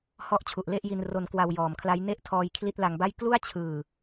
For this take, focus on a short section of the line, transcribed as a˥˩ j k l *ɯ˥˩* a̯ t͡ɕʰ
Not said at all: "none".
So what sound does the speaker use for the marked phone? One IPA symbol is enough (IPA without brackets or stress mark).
u˥˩